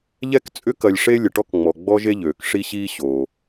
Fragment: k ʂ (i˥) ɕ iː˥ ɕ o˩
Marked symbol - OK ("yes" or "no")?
yes